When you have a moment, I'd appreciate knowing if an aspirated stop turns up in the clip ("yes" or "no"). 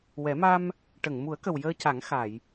no